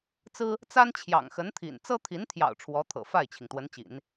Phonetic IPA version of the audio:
t͡s ɹ̩˥ | t͡s a˥ n t͡ɕʰ j ɑ̰˨˩ ŋ x ə˧˥ n t̪ʰ ḭ˨˩ n t͡s ɤ˥ t̪ʰ i˧˥ n t̪ʰ j ɑ̰˨˩ ʊ̯ ʈ͡ʂʰ w ɔ˧˥ t̪ʰ ɤ̰˨˩ f a˥˩ ɪ̯ t͡ɕʰ i˩ ŋ t̪ w ə˧˥ n t͡ɕ ḭ˨˩˦ n

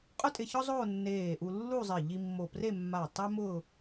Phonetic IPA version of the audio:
qʼ ʊ˥ tʼ ɪ˧ ç ɔ˥ zˤ oː˥˧ nː eː˧˩ ʔ u˧ lː u˥˧ zˤ ɪ˧˩ ʎ i˧ mː o˧˩ p r e˥˧ mː a˧˩ tˤ ɛ˥ m ʊː˥˧

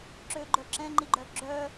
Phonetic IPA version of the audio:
ǁ ø ɡ͡ǃ œ ǁ ɛ̃ ŋ͡ǃ i ɡ͡ǃ œ ɡ͡ǁ œ

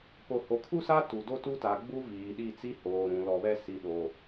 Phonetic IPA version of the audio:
p o˨ h o˨ kʰ u˦ s a˦ t u˨ d o˦ t u˦ t a˨ ɡ͡b u˦ v iː˨ ɗ i˦˨ t͡s i˦ h oː˨ ɾ ũ˨ l ɔ˨ β ɛ˦ s i˨ ɗ o˨

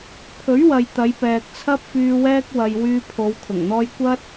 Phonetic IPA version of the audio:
pʰ ɵ˨˥ ɥ w ɐ˨ j t̪ ɐ˨˧ j p ɛː˨ k̚ t͡sʰ ɐ˥ p̚ f yː˧ w ɛː˥ k̚ w ɐ˧ j w yː˧ pʰ o˨˧ w kʰ ʊ˨˩ ŋ n̪ ɔː˥ j kʷ ɐ˥ t̚

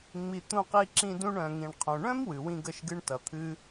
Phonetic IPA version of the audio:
ŋ͡m i˧ t̪ ũ˧ q i˧ ǁ ĩ˧ d ũ˧ ɳ œ̃˨ ŋ ĩ˨ ɳ qʰ õ˨ ɳ œ̃˦ m w ɨ˨ w ĩ˧ ɡ ə˦˨ ʃ ɡ ɨ˧ ɳ t ʌ˨ t̪ʰ ɨ˧

